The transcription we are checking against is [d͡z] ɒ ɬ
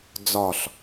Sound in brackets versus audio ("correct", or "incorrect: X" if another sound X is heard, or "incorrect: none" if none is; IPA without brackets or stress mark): correct